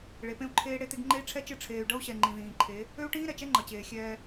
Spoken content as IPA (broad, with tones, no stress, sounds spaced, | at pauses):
ɭ e˨˦ p ẽ˦ u̯ ǃʰ eː˦ ɽ e˦ t̪ e˦ ɡ ŋ͡ǃ e˦ i̯ ʈ͡ʂʰ ɛ˦ t͡ʃ ɨ˦˨ ʈ͡ʂʰ eː˨ y̯ ɖ ʌ˦ u̯ ɕ ɛ˨ ŋ͡ǃ ĩ˨ ð ĩː˨ ǃʰ e˨˦ | ø˦ u̯ ʈ ĩː˦ ɾ ɛ˨ t͡ʃ ɛ˦ ŋ͡ǃ ʌ˨ t͡ɕ eː˨ xʲ ɛː˦